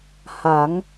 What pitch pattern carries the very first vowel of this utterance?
rising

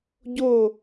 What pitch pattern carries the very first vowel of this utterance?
falling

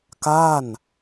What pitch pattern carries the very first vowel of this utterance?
falling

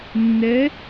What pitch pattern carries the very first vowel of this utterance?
rising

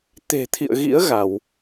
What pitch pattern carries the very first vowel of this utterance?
low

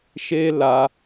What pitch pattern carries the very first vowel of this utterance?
high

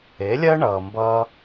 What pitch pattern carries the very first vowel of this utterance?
rising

